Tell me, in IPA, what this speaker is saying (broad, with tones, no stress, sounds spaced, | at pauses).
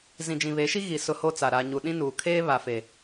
z ĩ˨ d͡ʒ ĩ˨ β e˨˦ ʃ i˦ ɣ i˨ s ʊ˦ h o˦ t͡s a˨ ɾ a˨ ɲ u˨ ɗ ĩ˦ n uː˨ kʰ eː˦ β a˨ f e˨